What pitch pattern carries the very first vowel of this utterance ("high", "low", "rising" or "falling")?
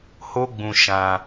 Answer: high